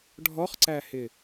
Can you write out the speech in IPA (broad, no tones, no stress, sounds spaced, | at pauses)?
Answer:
ɖʱ ɔ χ ǀ æ h ɪ